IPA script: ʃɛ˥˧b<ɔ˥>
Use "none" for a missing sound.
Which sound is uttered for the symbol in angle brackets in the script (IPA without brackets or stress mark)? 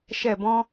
ɔ̃˥